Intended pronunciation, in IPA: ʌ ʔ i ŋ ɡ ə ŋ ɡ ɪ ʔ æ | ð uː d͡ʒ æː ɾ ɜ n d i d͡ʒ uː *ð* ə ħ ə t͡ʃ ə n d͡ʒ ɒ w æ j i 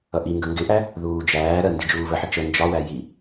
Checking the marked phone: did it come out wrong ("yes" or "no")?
yes